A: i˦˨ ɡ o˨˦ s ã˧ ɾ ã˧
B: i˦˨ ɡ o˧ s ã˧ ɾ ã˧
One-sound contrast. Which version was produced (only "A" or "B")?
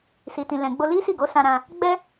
A